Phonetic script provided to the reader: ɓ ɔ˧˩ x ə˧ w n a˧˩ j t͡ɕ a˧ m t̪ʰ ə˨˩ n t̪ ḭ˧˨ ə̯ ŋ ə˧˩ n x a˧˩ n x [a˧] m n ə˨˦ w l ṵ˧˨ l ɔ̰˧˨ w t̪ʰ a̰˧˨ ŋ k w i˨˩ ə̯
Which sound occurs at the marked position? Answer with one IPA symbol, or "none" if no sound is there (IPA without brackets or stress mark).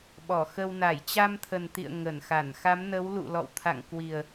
a˨˦